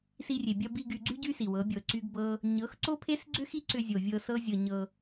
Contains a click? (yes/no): yes